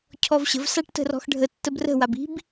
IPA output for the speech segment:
cʰ ɔ v ɕ ə̤ v s a ʈ t ə̤ r ɔ̤ x ɖʱ ə tː ə b r ə̤ w a b i̤ b

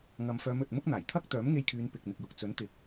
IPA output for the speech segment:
ŋ ɐ˨ m f œː˨˧ m ɵ˨ t̚ m ʊ˥ k̚ n̪ aː˨˩ j t̪ʰ ɐ˥ k̚ t̪ œː˨˥ m ŋ e˧ j kʰ yː˨˧ n p ɪ˨ k̚ n̪ ɪ˨ k̚ j ʊ˨ k̚ t͡s ɵ˨˥ n t̪ ɪ˨˥ k̚

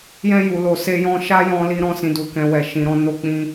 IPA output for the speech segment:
j ɛ̃˧ j u˨ l o˨ s e˧ j ɔ̃˧ ʃ a˦ j ɔ̃˧ l i˧ ɾ ɔ̃˦ s ĩ˧ d u˧ k ɛ̃˧ w ɛ˨ ʃ ĩ˨ ɾ ɔ̃˧ n o˦ k͡p ĩ˦

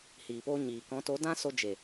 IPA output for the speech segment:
h iː˨ p o˧ ɲ iː˨ k ɔ̃˨˦ t o˨˦ d ã˦ s o˧ d͡ʒ e˨

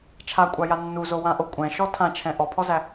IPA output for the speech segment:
t͡ʃʰ a kʷʼ a j a nː u z o w ã ʔ o kʷʼ ɛ̃ ʃ ɔ tʰ ã t͡ʃʰ ɛ̃ ʔ ɔ pʰ ɔ z æ

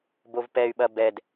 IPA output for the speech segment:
b o v p ɛ y̯ ɓ ɐ b ɛ d

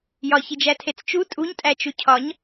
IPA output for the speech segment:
j ɒ ç i d͡ʒ æ tʰ e t͡s t͡ʃ u tʼ u ɲ tʼ æ t͡ʃ u cʰ ɒ ɲ

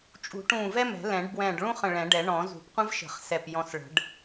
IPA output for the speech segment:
t͡ʃʼ ṳ˨˩˦ ʈ ũː˧˩ v ɛ˥ m ɛ̤˨˩˦ l ɛ̃˨˩˦ ɖ b w ɛ̃ː˧˩ ɖ ɭ ũ˥ χ ə̃˧˩ ɭ ɛ̃˨˩˦ ɖ ɛ˨˩˦ ɳ ɔ̃˨˩˦ z ṳ˨˩˦ p qʷ ə̃˥ v ʃ ə̤˨˩˦ χ s ɛ˧˩ p j ɔ̃˧˩ s ɭ ə̤˨˩˦ ɖ

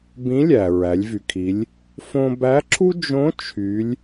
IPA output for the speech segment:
b ĩ˧˥ lʲ æ˩ ɹ æ˩˧ lʲ v y˩ kʰ i˩˧ lʲ | f õ˧ b æ˧˥ ǁʰ u˥ d͡ʒ õ˧˥ t͡ʃʰ y˩˧ lʲ

